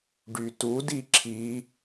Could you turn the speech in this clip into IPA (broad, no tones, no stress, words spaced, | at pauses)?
ɖytu diǁʰi